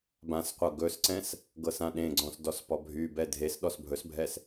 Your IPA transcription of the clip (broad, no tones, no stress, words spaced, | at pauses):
bãsqʷɤ ɡɵsǀɛ̃s | ɡɤsãɗẽɡ͡ǀɔ̃s dɔspɔbʱybɛ dʱes ɗɔsbʱɵsbʱɛs